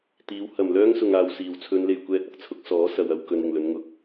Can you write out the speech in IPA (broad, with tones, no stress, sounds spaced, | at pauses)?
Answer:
t̪ iː˨˥ w h ɐ˨˩ m l œː˥ ŋ s ʊ˨ ŋ aː˨ w s iː˨˩ w t͡sʰ ɵ˨˧ n l e˨ j kʷ ɛː˧ t̚ ɐ˧ k̚ t͡sʰ ʊ˨˥ k̚ s ɔː˨˥ s ɐ˨ w ɐ˧ w k ɵ˨˧ n ɪ˨˩ ŋ l ɵ˨˧ n ŋ ʊ˨ k̚